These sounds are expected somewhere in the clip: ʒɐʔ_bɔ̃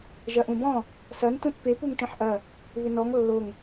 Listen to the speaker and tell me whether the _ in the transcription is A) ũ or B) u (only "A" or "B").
A